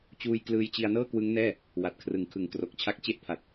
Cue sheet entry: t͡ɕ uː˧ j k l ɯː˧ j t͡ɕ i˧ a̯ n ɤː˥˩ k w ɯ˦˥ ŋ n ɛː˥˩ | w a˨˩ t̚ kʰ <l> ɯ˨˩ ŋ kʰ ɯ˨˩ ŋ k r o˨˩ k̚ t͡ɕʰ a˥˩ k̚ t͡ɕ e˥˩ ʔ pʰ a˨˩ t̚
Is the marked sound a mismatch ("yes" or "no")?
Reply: yes